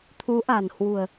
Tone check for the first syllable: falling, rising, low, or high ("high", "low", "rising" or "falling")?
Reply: rising